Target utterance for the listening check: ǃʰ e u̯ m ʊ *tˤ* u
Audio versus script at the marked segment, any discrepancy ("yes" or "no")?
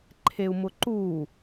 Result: yes